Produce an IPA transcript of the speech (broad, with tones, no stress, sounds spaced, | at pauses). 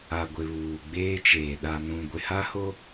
a˨ ɡʷ ɪ˨ β uː˨ ɡ͡b eː˦ t͡ʃ eː˨ ɗ a˨ n ũ˨ ɡʷ ɪ˨ h a˦ h o˦